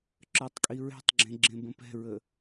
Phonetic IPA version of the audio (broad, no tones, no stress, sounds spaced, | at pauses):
ǁ ə˞ tˤ kʼ i ɹ ɛ̤ tˤ ɡ͡ǁ ẽ ɡ͡ǁ ẽ b ə̃ p ɛ̤ ɹ ə